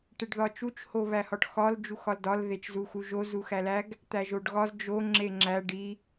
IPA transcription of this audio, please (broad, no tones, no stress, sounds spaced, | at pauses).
ʈ e ɖ ð ɒ t͡ʃ u t͡ʃ h o β æ h ɒ ʈ x ɒ l d͡ʒ u x ɒ l d ɒ l ð e t͡ʃ z u x u ʒ o z u x æ l æ ɡ | t̪ æ ʒ o ɖ ɣ ɒ z d͡ʒ o ŋ͡ǁ e ŋ͡ǁ æ ɖ i